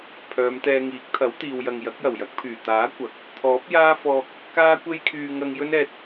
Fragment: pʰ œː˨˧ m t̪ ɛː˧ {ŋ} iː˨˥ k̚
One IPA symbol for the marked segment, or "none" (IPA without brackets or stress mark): ŋ